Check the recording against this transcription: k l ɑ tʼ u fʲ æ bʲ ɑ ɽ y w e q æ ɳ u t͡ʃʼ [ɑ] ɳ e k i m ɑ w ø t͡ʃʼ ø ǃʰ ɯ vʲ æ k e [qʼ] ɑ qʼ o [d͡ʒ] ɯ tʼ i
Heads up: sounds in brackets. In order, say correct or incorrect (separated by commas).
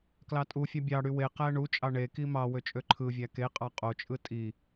correct, correct, incorrect